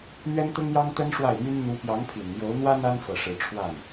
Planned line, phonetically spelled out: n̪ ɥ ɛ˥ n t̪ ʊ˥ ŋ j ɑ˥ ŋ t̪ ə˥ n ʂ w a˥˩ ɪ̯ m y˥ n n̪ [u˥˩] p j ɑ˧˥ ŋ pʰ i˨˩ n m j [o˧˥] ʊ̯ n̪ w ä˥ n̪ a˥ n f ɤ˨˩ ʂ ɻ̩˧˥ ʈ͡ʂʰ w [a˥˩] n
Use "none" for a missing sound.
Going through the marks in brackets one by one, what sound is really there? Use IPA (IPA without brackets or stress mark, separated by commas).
u˧˥, o˧˥, a˥˩